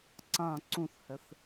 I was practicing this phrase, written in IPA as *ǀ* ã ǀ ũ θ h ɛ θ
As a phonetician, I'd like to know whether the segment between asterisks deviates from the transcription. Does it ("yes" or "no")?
no